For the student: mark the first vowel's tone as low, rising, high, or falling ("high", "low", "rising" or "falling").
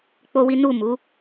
high